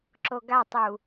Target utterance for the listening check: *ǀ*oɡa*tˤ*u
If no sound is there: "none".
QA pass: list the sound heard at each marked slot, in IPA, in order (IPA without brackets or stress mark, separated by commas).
ǁ, tˤ